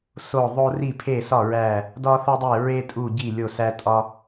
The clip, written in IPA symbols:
so˥˨ ðˤo˥ ri˥˨pʰe˥˨sɒ˥˨ ɹæ˥˨ | dɒ˥θo˥dˤe˥˨ ɹe˥tʼu˥˨ɟi˥˨ lʲo˥˨sæ˥tʼɒ˥

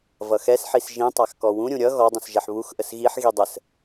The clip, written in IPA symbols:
vʌxɛsħis ʒĩtˤax kɔwũɾʲũ ɾʲʌ ɣɔdˤũsʒɛħ βuxʔəs ɣiħ ɣidˤəs

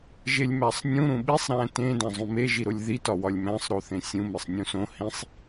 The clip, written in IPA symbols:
ʒelʲmæsˤnʲũ ɾũɓisˤ ɾæ̃tẽ dæ̃zˤũme ʒiɾolʲði tɒwɒlʲmæ̃sˤ ɾoθẽsʲũ mesˤnʲũsõ hĩsˤ

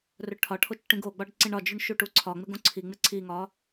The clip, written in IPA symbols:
rɵʈʰɒʈʰot͡ʃ ʈĩɡoɡ͡bɒɖ ǀĩɳɒd͡ʒʉɳ ʃuʈuǀʰɒŋ͡mɪɡ õǀʰiŋ͡mɪ ǀʰiŋɒ

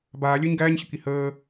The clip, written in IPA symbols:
baːlʲəːɲ ɡæːɲɕəki həː

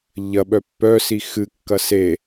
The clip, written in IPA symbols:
ʎɐɓœ pːœ sixɨkːɐ se

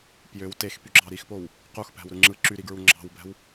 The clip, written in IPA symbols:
pjøw texpyɡ͡ǁɑ ɾixpow | quxpæ̤wɾɯ ŋ͡ǁɯ ǁyɾiɡɹu ŋ͡ǁɑ̤wbæ̤w

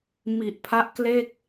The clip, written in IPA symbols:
mi˨˩ʔ pʰa˦˥ʔkle˥˩k̚

